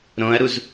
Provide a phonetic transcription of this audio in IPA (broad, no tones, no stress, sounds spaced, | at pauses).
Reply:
ɾ õ ɐ̯ ɾ u z